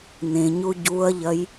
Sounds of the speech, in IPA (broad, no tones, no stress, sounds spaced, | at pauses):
n ẽ ɲ u ɟ u ɐ̯ ʎ ɐ j